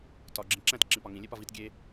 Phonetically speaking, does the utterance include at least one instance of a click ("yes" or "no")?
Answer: yes